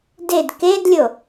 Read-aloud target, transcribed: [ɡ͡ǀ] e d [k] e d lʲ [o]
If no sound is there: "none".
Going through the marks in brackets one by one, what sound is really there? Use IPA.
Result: d, k, o

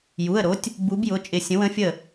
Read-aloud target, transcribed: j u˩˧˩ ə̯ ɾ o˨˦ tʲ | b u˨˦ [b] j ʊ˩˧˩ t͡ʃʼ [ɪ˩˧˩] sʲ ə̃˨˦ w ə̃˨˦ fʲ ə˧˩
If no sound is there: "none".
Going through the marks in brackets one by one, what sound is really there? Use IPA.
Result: b, ɪ˧˩

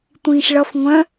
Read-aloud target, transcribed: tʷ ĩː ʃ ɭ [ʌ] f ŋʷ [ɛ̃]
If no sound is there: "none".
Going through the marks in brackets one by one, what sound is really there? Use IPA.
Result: ʌ, œ̃

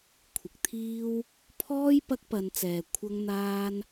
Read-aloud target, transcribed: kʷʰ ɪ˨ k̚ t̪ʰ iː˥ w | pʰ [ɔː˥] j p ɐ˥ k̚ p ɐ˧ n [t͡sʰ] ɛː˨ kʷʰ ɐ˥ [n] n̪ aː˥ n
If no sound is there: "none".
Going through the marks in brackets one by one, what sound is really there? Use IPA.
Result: ɔː˥, t͡s, ŋ

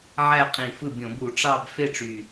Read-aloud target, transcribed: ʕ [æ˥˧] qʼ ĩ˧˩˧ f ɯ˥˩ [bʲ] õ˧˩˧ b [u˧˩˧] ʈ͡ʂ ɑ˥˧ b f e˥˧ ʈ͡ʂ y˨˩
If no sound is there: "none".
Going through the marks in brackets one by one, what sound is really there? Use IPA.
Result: æ˥˧, bʲ, u˧˩˧

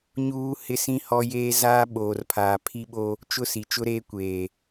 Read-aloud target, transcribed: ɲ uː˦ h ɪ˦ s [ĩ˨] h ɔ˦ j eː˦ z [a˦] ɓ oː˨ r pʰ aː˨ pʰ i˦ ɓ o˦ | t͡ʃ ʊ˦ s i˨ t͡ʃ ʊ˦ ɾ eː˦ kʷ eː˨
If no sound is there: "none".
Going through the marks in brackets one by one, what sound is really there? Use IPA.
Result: ĩ˦, aː˦

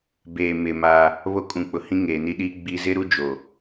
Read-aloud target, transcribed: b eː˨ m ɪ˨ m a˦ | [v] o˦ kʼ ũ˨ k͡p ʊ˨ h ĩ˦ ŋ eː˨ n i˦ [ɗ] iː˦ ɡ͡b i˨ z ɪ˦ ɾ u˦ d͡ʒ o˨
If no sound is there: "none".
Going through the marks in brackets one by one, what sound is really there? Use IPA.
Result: β, ɗ

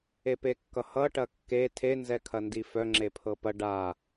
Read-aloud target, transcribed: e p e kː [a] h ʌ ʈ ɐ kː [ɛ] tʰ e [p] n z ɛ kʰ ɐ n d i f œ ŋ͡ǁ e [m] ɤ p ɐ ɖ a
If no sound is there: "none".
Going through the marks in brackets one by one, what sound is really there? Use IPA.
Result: ʌ, e, none, pʰ

